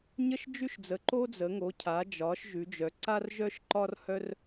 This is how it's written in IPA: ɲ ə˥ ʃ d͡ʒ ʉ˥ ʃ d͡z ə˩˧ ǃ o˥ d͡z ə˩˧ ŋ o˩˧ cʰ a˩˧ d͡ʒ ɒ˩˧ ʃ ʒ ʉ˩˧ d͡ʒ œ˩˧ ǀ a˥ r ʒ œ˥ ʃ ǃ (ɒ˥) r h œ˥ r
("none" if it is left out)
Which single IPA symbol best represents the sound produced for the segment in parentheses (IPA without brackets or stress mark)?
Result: ɒ˥